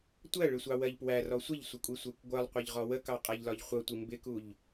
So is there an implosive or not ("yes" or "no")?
no